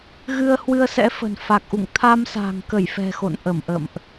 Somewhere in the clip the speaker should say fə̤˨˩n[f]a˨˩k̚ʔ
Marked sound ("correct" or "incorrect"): correct